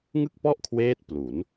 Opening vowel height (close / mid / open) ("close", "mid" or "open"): close